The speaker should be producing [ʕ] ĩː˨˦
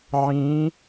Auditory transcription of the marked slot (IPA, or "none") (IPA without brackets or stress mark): ʕ